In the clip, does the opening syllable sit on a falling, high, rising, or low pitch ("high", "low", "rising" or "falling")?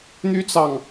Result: high